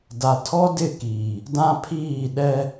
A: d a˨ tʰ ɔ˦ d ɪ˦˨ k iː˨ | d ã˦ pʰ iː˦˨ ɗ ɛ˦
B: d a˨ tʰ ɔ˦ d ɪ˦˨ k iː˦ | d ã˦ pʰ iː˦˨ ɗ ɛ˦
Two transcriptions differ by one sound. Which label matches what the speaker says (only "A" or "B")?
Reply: A